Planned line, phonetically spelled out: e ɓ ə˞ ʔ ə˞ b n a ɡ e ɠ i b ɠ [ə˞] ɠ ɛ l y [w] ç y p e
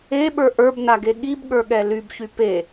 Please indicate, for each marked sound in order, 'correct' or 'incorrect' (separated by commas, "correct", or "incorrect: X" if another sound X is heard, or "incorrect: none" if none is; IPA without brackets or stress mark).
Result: correct, incorrect: b